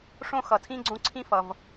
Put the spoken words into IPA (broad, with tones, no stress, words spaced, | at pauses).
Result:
ʂõ˥xʌ˩tʰĩ˥ ɡ͡ǀõ˥ǀʰĩ˥fʌ˩v